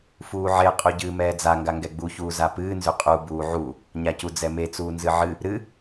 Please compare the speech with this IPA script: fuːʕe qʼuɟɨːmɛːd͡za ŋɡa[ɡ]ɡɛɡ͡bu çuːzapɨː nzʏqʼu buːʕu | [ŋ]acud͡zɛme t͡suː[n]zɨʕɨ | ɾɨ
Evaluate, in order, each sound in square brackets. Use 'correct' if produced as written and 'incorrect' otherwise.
incorrect, incorrect, correct

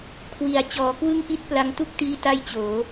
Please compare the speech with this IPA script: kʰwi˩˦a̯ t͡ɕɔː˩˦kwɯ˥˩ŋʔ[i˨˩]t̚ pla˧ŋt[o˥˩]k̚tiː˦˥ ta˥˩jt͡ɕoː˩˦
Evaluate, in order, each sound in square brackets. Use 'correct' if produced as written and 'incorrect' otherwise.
incorrect, incorrect

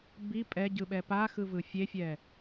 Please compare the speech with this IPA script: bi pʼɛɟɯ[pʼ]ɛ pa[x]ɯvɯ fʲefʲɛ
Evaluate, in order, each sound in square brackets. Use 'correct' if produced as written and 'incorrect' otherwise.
incorrect, correct

